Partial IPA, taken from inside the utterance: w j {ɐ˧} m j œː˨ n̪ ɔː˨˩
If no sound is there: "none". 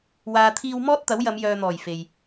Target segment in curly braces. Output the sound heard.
ɐ˨˧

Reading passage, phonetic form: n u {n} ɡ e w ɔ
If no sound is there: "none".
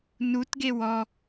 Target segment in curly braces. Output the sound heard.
t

